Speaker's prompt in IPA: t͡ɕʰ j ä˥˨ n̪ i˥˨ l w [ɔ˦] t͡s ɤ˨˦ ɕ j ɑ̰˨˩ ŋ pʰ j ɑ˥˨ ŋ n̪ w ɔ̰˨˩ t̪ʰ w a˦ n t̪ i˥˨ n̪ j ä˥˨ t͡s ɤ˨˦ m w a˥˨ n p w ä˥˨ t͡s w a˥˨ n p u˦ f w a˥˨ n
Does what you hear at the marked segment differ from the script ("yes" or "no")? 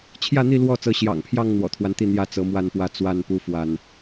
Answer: yes